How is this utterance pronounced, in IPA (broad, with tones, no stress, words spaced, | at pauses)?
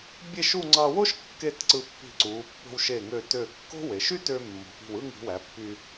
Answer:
bʲe˥˧ʃu˥˧ ŋ͡ǀɑ˧wo˥ʃ kːe˥˧tǀɯ˧ pːi̤˧˩ǀuː˩˧pːo̤˧w ʃe˧˩ŋø˧˩tø˧˩ kːo̤˥we˩˧ ʃy˥tø˧mːo̤˩˧p i̤˧˩wɯ˥˧ŋi̤˩˧ wæ˩˧pːy˧